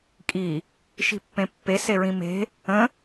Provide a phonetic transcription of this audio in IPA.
kʼ i | ʃ i̤ pː ẽ pː e s e ɹ ĩ m e̤ | ə̃

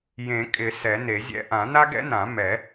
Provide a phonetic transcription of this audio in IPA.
j ẽ˨˩˦ kʼ ɪ˨˩˦ s ɛ˨˩˦ n e˨˩˦ zʲ ɛ̰˥ ʔ ã˨˩˦ n a˥ ɡ ɛ̰˥ n ã˨˩˦ m ɛ˨˩˦

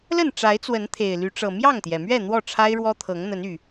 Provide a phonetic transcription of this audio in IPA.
l ə˥˨ n ʈ͡ʂ a˨˦ ɪ̯ t͡s w ə˨˦ n t̪ʰ e˨˩ ɪ̯ l y˨˦ ʈ͡ʂ ɤ˨˩ m j ɑ˥˨ ŋ t̪ j ɛ˩ m ɥ ɛ˥˨ n̪ w ɔ˥˨ ʈ͡ʂʰ a˦ ɪ̯ ɻ w ɔ˦ t̪ʰ ɤ˨˦ ŋ n̪ ə˨˦ n y˨˩

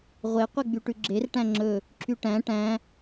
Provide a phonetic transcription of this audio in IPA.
ʁʷ e qʷ e ɡ͡b y ʈ ʉ ɡ͡ǁ e r ʈ æ̃ ŋ͡ǁ ɵ | ǁʰ y ʈ æ̃ ʈ æ̃

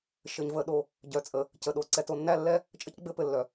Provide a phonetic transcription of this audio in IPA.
ʃ ɘ˨ ɲ v ə˦ ɗ o˦ | ɟ œ˨ t͡sʼ ə˨ | c ə˨ ɗ o˨ ǀ ɛ˨ t o˨ nː æ˦ lː ɛ˦ | t͡ʃʼ ə˦ c ɡ͡b ɘ˦ p ɘ˨ lː œ˨

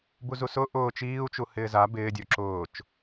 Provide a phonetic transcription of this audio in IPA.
b u z u s ʊ ʔ ʊː t͡ʃ iː u̯ t͡ʃ u h ɪː z a b ɪː dʲ o ǁ ʊː t͡ʃ

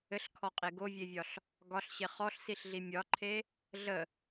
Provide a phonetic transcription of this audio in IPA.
ɘ ɬ kʰ ɔ qʼ e ɡ o vʲ e vʲ ɒ ɬ | ɡ ɒ ɬ ɕ e χ ɔ ɬ s i ɬ ɮ i mʲ ɒ ǃʰ e | ɮ ə

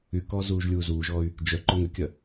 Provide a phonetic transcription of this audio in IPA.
y k ɔː z uː ʒ lʲ uː z uː ʒ ɔː y̯ | d͡ʒ œ ǃ ʊ ŋ ʏ kʲ ɐ

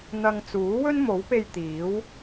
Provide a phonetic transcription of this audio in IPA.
n̪ ɐ˧ ŋ t͡s uː˨˥ w ɵ˥ n m o˨˥ w p e˧ j t̪ iː˨˥ w

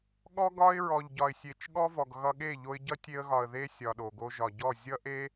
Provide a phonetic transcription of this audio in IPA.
ɠ ɔ˦ ɡ ɒ˦ ɪ̯ ɹ ɔ˨ ʎ ɟ ɒ˨ ɪ̯ sʲ e˨ t͡ʃ ɠ ɔ˦ v ɔ˨ ɡ ɣ ʌ˧ ɠ e˦˨ ʎ o˧ ɪ̯ ɟ ʌ˦ tʲ e˧ ə̯ ɣ ɒ˨ ə̯ ð e˦ sʲ ɒ˧ ɗ o˨ ɡ o˦ ʒ ɒ˨ ɟ ɔ˦˨ zʲ ʌ˦ ʔ e˦

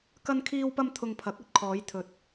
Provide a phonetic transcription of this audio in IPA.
k ɐ˧ n kʰ iː˧ w p ɐ˧ m t̪ʰ ʊ˧ ŋ pʰ ɐ˨˥ k̚ ɵ˨ t̚ kʰ ɔː˨˧ j t̪ʰ ɵ˨ t̚

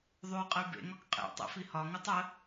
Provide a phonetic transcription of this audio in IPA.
ðˤ ʉ qʼ ə y̯ b ḛ ŋ ɒ k qʼ ḛ tˤ ḛ f i h ɒ ŋ ʉ tˤ ə

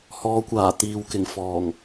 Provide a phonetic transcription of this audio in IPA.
h ɔː˨˧ kʷ aː˨˩ t̪ iː˨ w k ɪ˨˩ ŋ f ɔː˨˩ ŋ

